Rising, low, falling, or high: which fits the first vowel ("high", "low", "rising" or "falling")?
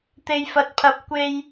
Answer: high